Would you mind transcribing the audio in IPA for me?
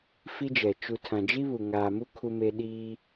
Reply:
f i˦ d͡ʒ ɛ˨ t͡ʃ u˨ tʰ ã˨ d͡ʒ i˦ β u˨ ŋ aː˨ m u˦ kʰ u˦ m e˦ ɗ iː˦

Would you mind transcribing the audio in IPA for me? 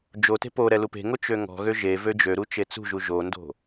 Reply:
d͡ʒ o t e̤ p o ɾ ɛ l u p e̤ ŋ o t͡ʃ ø ŋ ɔ̤ ɣ ø ʒ e v ø d͡ʒ ø ɾ u t͡ʃ e t͡s ṳ ʒ u ʒ o n d o̤

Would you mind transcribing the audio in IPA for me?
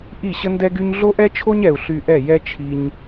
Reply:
ʔ i˦˨ ɕ ə˦ n d ɛ˦ ɡ y˦ ɲ ɮ o˦ ʔ ɛ˦ t͡ʃʰ o˦ ɲ ɛ˨ u̯ ɬ y˧ ʔ ɛ˦˨ j ɛ˦ t͡ʃʰ i˧ ɲ

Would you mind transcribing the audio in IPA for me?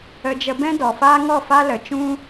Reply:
ə˧ d͡ʒ ə˧ b ɛ̃˦ d ɔ˨ f aː˦ ŋ ɔ˦˨ f a˦ l ə˨ t͡ʃ ũ˦

